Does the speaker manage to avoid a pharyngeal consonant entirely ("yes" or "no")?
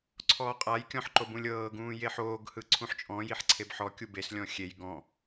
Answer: no